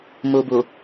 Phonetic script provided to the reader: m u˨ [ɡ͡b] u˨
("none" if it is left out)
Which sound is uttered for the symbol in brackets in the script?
b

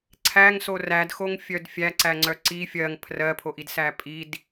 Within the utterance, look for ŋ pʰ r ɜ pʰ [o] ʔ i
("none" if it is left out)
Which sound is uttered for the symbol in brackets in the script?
o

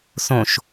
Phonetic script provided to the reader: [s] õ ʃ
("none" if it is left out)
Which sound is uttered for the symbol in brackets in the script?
s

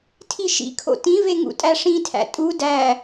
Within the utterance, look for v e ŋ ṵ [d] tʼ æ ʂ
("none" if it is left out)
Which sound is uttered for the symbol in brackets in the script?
none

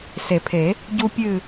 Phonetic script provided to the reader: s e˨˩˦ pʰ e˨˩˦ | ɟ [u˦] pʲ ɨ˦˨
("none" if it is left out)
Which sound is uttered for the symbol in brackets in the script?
u˦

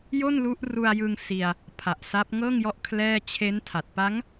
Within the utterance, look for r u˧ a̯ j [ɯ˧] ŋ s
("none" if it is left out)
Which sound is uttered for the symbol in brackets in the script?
ɯ˧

